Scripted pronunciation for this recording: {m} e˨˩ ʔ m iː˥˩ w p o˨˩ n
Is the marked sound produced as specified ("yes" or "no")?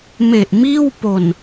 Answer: yes